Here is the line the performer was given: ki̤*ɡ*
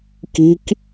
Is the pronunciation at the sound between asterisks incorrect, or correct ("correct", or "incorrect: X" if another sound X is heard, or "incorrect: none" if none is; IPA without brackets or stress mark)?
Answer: incorrect: k